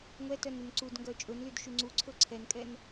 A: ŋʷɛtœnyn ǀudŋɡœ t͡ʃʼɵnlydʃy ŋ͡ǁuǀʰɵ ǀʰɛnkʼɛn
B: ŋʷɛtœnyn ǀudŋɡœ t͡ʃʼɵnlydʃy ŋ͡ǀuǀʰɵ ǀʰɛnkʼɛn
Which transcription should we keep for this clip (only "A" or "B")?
B